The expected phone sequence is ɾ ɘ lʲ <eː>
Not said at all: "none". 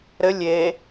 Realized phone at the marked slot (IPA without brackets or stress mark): eː